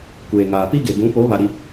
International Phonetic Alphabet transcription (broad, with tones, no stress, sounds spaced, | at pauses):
kʷ eː˨ ŋ aː˨ p i˦ ɡ e˨ b ũ˨˦ p o˨˦ β a˨ ɾ i˨